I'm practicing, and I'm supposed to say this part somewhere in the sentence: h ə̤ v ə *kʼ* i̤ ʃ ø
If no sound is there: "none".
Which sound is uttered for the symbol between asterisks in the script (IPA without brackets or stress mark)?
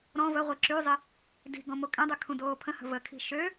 kʰ